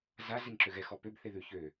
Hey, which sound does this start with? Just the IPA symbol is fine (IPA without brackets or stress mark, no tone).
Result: z